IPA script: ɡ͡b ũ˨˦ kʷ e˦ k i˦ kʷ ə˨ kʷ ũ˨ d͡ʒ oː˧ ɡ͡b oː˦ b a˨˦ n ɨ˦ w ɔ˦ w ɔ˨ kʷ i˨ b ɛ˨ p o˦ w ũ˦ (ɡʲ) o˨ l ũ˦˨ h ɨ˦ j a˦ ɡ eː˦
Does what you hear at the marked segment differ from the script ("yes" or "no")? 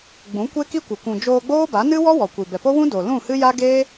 yes